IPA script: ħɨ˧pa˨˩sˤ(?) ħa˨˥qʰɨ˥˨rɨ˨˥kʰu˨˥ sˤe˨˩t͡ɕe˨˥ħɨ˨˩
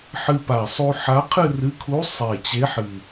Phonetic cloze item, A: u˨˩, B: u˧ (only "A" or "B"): B